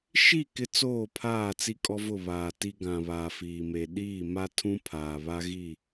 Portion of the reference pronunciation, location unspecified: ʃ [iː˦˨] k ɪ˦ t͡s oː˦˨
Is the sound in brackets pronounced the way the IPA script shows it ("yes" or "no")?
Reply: no